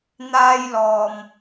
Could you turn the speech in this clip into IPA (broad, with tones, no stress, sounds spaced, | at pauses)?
n̪ aː˧ j l ɔː˨ m